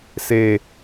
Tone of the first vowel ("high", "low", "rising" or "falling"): low